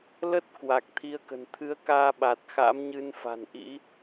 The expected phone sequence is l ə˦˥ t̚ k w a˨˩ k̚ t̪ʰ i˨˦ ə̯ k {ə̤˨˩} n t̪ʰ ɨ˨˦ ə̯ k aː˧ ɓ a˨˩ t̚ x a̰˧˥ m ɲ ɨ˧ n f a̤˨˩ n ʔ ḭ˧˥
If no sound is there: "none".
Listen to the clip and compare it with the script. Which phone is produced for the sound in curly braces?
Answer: ə̤˨˩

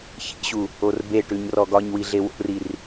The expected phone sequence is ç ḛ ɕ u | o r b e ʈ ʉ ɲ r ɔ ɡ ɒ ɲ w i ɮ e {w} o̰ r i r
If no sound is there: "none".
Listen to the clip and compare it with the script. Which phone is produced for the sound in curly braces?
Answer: w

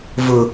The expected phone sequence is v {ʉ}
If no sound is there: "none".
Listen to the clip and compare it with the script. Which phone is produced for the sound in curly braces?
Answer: ʊ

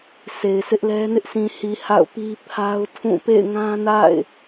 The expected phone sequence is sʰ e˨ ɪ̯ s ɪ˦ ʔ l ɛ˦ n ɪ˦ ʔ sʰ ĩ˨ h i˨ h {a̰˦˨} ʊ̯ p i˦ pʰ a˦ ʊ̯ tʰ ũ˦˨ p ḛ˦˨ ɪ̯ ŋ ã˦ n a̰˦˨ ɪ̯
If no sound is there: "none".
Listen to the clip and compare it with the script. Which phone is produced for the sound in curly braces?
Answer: a̰˦˨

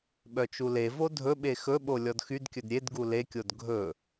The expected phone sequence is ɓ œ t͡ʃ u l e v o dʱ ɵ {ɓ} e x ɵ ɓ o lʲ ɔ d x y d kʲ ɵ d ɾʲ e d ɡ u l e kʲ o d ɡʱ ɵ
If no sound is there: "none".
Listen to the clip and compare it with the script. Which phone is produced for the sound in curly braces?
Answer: ɓ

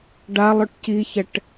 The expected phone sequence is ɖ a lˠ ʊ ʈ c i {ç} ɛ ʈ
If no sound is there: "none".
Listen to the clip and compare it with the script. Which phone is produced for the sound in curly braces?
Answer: ç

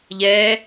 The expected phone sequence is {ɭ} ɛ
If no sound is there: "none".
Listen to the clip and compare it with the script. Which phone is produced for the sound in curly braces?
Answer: ʎ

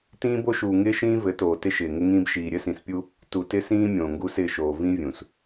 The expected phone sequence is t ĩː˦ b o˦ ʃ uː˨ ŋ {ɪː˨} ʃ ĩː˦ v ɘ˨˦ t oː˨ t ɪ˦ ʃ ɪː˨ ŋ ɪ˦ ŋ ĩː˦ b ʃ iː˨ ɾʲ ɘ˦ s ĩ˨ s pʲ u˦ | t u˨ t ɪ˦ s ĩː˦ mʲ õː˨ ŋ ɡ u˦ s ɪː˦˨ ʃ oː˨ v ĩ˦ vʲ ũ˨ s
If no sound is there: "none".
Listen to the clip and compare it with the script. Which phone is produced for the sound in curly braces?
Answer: ɪː˦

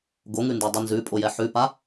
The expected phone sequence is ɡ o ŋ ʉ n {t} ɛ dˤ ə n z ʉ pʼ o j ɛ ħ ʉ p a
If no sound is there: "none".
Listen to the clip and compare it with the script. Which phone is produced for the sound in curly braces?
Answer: d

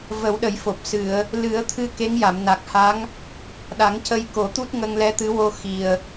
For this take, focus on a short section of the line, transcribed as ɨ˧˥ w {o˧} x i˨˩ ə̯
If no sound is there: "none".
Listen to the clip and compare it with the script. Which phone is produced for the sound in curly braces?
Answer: o˧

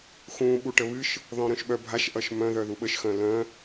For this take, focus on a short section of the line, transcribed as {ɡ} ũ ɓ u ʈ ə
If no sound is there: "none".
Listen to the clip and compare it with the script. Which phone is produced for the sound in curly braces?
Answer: x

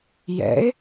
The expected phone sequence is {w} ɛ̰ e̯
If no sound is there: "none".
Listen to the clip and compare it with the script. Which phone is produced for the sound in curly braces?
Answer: j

